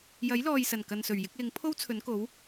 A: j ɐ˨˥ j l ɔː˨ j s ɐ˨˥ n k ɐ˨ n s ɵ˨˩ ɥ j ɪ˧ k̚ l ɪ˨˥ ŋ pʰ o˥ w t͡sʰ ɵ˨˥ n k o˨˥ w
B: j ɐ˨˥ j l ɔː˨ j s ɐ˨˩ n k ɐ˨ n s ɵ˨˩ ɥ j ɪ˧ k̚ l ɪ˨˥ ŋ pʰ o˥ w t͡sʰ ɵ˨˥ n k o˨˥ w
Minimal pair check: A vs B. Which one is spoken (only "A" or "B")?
B